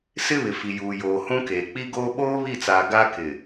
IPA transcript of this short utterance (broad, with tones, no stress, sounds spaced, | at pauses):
s ɪ˦ β ɪ˨ f i˨ j uː˨ j oː˨ h ũ˦ k eː˨ k͡p i˦ ɡ oː˦ ɓ oː˦ β i˦˨ t͡s aː˨ ɡ a˦ k ɪ˨